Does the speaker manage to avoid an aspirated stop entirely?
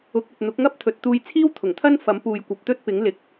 no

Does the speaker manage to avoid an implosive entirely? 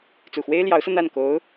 yes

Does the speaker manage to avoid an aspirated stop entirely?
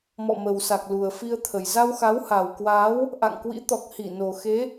no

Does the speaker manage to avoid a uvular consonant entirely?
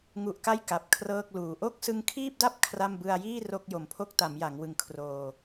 yes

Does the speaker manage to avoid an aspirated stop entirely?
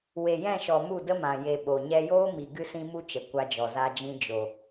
yes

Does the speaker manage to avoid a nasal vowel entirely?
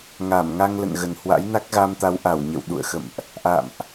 yes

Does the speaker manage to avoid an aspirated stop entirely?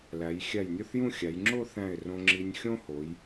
yes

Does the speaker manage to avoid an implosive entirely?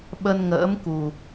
no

